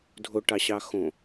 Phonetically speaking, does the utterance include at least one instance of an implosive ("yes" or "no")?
no